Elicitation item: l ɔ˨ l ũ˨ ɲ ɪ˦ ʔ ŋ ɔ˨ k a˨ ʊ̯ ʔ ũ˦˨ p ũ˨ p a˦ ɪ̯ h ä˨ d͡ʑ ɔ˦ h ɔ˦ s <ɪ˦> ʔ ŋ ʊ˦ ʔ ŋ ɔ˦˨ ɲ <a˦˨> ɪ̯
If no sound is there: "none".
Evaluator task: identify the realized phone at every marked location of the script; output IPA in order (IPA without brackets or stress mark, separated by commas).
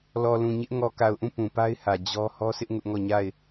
ɪ˦, a˦˨